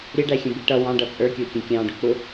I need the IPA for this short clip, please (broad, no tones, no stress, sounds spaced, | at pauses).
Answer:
ɾʲ ə ɖ æ xʲ ə̃ b i ʈ ʌ w ɑ̃ ɖ ʌ t͡sʼ ə˞ kʲ ʊː kʲ ɛ̃ kʲ ɑ̃ː ɖ ʊ k͡p ʊ